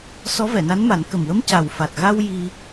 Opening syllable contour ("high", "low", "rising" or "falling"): rising